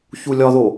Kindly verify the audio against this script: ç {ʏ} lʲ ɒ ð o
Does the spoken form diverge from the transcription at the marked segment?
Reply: yes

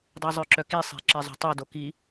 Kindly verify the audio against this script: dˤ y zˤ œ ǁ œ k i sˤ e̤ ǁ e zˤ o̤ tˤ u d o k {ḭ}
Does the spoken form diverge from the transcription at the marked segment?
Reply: yes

